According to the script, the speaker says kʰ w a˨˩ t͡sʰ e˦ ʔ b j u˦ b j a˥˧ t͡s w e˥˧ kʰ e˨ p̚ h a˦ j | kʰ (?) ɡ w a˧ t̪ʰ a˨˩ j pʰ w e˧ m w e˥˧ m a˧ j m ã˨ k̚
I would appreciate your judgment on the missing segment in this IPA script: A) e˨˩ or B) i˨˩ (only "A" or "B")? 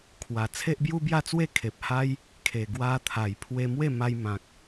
A